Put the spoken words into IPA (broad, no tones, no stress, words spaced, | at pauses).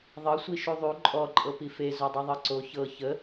ðˤɤsʷi ʃuðˤu ǃʼɔǃʼɤ pife zodˤuðˤɤǀo çɤ çə